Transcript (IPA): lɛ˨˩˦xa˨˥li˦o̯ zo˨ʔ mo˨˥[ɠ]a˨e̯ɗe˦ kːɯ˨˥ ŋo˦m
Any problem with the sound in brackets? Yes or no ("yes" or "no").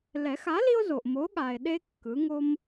no